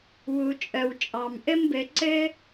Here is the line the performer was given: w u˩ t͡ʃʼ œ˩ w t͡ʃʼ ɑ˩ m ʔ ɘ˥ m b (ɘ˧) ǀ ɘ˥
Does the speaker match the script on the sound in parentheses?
yes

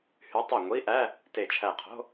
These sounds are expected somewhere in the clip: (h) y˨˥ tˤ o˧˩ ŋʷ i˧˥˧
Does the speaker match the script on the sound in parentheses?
yes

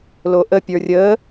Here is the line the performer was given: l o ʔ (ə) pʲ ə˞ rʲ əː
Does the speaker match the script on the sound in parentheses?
yes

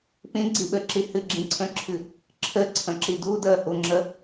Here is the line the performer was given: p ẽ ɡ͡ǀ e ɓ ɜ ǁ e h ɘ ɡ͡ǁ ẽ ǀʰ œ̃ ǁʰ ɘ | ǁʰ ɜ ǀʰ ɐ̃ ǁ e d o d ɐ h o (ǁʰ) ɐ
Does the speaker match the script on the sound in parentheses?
no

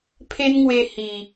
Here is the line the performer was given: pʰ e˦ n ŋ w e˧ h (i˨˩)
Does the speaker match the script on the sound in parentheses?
yes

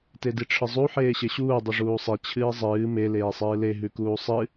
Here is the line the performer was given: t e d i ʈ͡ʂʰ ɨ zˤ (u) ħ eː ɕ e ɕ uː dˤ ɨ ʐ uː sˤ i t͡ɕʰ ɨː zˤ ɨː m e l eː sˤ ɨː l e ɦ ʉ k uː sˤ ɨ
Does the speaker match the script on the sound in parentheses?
yes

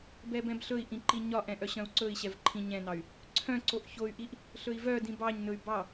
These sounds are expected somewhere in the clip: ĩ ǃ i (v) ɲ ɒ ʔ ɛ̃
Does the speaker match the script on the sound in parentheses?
no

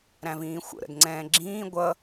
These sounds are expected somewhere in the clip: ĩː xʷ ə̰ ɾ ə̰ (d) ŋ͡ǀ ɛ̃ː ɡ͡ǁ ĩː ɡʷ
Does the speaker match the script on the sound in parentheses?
yes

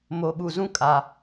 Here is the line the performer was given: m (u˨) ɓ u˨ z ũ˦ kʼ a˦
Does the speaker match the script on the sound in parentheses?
no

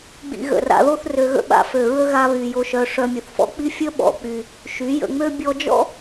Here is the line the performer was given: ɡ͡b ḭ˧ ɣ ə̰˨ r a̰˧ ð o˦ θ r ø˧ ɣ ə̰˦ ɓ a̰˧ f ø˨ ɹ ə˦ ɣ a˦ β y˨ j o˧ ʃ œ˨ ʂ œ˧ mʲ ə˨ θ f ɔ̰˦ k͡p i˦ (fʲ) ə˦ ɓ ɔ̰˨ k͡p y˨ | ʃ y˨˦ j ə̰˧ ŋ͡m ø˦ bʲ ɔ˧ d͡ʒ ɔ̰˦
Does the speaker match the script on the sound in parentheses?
yes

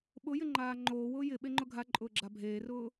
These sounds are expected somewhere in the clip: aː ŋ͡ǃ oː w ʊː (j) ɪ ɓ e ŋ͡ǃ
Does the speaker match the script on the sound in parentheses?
yes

